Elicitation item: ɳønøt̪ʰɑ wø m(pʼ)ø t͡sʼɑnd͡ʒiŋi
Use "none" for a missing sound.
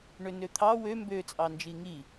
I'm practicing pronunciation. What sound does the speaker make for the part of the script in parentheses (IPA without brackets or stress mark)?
b